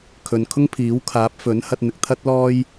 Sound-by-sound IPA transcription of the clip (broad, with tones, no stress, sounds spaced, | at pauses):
kʰ ɵ˨ n kʰ ʊ˥ ŋ pʰ iː˨˥ w kʰ aː˨˥ p̚ f ɵ˨˥ n h ɐ˧ t̚ n̪ ɪ˨ k̚ t̪ʰ ɐ˥ t̚ l ɔː˥ j